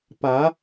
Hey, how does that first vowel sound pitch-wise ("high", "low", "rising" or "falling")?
rising